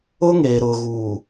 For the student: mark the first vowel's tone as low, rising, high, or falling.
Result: high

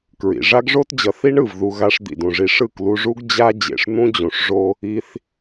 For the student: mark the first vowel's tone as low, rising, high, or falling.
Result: low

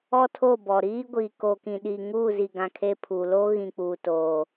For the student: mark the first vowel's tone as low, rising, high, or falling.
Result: high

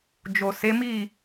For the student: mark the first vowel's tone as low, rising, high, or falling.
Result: low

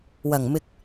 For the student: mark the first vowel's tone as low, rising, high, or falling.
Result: low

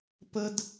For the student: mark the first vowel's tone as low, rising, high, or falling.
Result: high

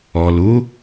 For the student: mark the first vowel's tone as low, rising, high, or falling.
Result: low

